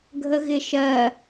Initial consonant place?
velar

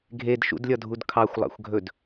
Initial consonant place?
velar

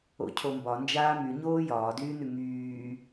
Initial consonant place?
palatal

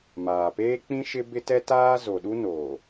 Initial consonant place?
labial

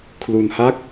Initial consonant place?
velar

